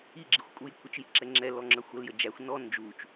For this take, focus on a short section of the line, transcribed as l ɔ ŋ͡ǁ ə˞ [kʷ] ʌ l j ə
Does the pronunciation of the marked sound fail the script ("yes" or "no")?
yes